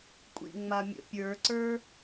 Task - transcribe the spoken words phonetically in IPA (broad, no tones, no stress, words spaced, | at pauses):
kʷʼḭŋ͡ma mʲə̰pʲə˞ǀə˞